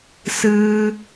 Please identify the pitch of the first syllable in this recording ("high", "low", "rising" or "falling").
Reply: high